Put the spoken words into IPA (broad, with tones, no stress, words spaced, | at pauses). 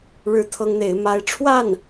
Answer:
ɻɻ̩˥t̪ʰɤ˥ŋn̪e˧˥ɪ̯ ma˧˥ɪ̯ʈ͡ʂʰwa˥˩n